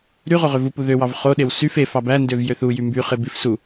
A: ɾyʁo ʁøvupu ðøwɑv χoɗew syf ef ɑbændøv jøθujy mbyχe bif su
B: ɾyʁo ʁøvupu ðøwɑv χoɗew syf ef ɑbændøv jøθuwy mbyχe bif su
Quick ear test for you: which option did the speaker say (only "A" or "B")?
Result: A